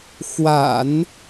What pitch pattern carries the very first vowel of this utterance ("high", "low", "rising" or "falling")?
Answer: low